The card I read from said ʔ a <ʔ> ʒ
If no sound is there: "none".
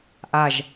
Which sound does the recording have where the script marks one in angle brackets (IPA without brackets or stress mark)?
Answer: none